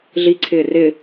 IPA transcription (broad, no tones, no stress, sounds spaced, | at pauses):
ɮ i ǀʰ ɪː r ɪ